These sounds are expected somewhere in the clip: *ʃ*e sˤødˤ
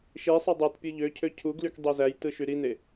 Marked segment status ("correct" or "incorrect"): correct